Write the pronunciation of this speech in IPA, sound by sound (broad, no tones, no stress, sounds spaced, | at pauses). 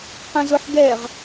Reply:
q ɛ̃ z ʊ ħ ɡ ɛ ʁ